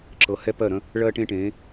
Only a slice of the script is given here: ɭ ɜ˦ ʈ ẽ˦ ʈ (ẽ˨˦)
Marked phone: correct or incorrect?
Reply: correct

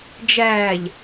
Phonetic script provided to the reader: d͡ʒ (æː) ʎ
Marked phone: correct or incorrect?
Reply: correct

